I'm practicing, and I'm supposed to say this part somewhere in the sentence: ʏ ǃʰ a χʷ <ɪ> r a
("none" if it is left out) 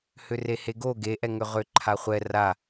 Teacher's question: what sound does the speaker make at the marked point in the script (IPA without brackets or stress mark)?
ɛ